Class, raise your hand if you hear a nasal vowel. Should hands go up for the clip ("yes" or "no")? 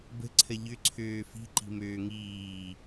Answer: no